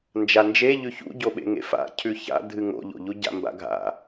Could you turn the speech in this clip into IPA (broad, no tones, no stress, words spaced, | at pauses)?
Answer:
nd͡ʒand͡ʒe ʎʉçṵɟoɓḛ ŋḛfa̰ cʰʉça̰ dʱɨŋo̰ʎo̰ʎu ɟa̰mba̰ɡʱa̰